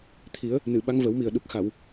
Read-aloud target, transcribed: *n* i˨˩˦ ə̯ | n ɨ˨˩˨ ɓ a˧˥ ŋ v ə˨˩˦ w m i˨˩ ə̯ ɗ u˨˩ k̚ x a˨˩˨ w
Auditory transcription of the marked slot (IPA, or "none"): t̪ʰ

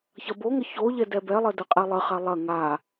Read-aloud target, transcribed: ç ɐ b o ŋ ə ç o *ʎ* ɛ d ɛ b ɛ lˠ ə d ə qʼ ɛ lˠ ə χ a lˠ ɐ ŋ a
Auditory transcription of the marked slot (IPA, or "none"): ʎ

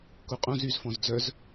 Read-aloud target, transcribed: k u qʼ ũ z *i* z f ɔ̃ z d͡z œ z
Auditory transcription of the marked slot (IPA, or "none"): y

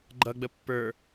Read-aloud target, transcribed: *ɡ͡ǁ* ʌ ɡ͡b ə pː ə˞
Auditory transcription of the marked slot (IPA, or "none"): ɡ͡ǃ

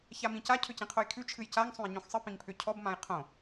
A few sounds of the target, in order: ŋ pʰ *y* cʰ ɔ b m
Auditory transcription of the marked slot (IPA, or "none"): ʏ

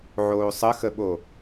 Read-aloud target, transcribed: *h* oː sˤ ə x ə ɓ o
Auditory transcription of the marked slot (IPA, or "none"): ʕ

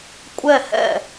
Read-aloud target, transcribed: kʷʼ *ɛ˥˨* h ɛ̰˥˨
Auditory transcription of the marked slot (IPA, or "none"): ɛ˥˨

